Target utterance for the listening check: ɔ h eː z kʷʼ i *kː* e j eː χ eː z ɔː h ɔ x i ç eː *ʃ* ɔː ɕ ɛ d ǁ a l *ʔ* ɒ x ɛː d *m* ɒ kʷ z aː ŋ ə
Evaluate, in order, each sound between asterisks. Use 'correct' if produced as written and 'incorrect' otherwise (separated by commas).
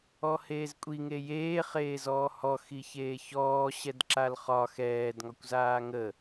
incorrect, incorrect, incorrect, incorrect